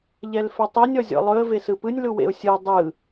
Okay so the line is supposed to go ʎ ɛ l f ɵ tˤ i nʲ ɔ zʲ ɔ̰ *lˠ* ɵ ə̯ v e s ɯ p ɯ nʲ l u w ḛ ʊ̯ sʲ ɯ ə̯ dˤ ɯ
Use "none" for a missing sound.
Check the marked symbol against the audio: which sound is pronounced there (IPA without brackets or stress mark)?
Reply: lˠ